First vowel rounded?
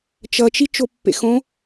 no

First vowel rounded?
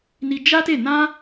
no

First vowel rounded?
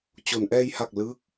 yes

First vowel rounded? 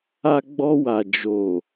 no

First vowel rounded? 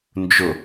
yes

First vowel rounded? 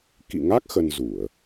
no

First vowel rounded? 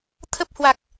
no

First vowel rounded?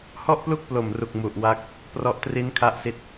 yes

